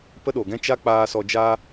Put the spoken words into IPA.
pə˦ɗoː˨ɡɛ̃˦ t͡ʃa˦k͡paː˧sɔ˧d͡ʒa˦

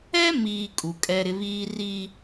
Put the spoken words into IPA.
ɛ˦miː˨ kʼu˨kʼɛ˦ɾɪ˦ βiː˦ ri˦

